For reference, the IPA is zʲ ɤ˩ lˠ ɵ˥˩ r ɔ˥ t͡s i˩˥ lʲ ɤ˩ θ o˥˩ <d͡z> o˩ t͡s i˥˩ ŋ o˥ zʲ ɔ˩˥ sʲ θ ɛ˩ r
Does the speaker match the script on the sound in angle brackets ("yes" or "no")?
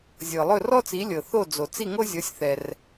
yes